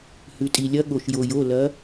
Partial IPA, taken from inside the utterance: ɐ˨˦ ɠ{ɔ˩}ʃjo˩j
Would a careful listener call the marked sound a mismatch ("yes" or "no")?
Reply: yes